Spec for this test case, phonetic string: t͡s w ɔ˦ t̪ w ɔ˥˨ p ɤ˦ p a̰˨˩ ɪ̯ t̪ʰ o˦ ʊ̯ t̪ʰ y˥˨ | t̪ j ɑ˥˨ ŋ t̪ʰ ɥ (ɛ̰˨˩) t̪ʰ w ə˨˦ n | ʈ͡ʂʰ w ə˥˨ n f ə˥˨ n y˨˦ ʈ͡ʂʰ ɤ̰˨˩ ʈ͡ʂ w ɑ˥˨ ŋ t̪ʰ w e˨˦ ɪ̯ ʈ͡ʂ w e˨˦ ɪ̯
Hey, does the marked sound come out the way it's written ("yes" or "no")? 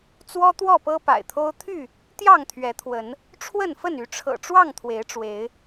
no